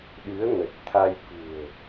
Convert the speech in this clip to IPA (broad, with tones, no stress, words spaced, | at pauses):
ɗɨ˨˦ə̯ŋə˨˩t̚t̪ʰa˧jkṳ˨˩ə̯